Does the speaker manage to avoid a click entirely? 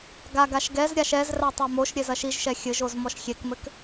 yes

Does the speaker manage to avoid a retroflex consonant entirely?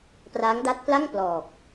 yes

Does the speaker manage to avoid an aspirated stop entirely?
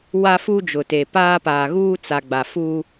yes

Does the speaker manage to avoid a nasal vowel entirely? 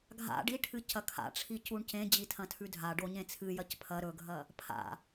no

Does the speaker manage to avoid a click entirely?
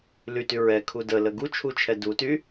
yes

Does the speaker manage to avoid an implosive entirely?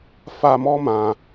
yes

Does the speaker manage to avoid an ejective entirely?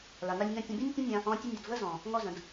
yes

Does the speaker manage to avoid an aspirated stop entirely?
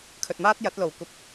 no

